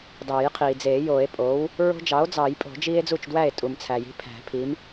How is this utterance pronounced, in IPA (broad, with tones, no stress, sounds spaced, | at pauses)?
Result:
d ɑː˨˩˦ j qʰ iː˩ d͡z eː˨˩˦ j oː˨˩˦ e̯ pʼ oː˩˥ w | ɹ o̤˦ d͡ʒ ɑ˩˥ o̯ d͡z ɑː˨˩˦ j pʼ o̤˨˩˦ d͡ʒ iː˦ e̯ d͡z u˥˩ t͡ʃ d w æ˥˩ e̯ tʼ u˩ m t͡sʰ æ˩ j i̤˩˥ pʰ æ̤˨˩˦ pʰ i˩˥ m